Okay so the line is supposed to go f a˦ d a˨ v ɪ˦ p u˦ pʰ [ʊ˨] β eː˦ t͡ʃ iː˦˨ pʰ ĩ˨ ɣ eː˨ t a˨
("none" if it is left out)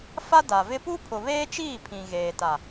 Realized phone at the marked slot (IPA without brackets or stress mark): ʊ˨